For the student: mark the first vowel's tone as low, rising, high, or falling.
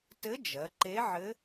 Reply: rising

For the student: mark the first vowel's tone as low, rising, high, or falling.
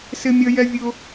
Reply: high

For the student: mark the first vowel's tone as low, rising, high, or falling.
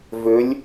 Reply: rising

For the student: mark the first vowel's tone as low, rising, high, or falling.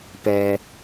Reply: low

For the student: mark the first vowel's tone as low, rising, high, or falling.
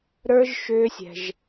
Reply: high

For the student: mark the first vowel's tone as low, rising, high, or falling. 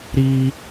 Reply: high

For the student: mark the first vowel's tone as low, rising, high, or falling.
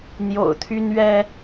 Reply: low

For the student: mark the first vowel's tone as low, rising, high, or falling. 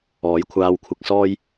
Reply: rising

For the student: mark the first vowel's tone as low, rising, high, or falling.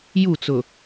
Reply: falling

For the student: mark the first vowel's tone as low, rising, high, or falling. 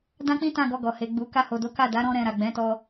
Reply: high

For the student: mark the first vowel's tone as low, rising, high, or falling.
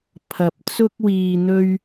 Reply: low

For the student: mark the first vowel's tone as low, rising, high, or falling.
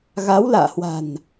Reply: rising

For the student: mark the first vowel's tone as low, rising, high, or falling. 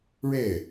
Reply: falling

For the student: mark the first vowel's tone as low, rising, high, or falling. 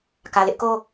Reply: low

